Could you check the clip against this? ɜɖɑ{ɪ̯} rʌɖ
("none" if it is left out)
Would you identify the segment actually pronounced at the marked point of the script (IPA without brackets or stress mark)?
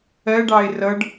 ɪ̯